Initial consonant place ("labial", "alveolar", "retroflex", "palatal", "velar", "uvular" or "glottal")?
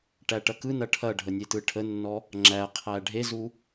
retroflex